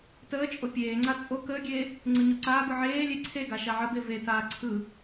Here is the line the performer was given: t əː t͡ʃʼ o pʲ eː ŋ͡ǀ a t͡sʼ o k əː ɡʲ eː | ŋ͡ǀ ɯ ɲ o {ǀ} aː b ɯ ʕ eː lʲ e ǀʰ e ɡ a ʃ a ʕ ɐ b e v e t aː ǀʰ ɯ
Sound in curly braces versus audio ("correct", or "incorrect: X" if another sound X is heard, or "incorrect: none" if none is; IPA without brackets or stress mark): correct